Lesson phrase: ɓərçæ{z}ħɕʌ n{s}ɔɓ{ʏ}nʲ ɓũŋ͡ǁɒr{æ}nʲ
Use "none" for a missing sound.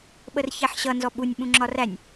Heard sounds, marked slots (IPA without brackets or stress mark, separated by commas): none, z, u, æ